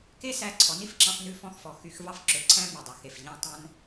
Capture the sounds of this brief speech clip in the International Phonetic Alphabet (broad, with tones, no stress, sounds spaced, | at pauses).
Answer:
k e˦ s æ˧ ǀʰ ɔ˨˦ n i˧ f ǁ ɑ̃˧ f n ʉ˧ f ɔ̃˧ x f ɔ˨ x y˧ x v ɑ˧ f ǁ ø˨ ǀʰ æ̃˧ m y˨ dˤ ɑ˨ x e˨ f ʎ æ̃˧ tˤ æ̃˦ n